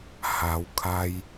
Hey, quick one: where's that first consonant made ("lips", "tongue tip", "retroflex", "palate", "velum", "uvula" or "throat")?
throat